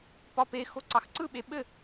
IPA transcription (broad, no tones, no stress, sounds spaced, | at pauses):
p ɒ p e x o ǀ ɑ x ǀ ɯ ɓ e ɓ ɘ